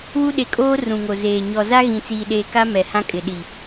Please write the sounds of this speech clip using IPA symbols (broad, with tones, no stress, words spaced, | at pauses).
wu˦ɗe˨kʼoː˦ rũ˨ŋo˨ zeː˨ ɲɔ˨za˦ɣĩ˨ t͡siː˨ɗeː˨ka˦ mɛ˨hã˦kʼɪ˨ ɗi˨